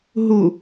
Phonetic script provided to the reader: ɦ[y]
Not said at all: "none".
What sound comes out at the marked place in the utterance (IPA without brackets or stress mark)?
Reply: u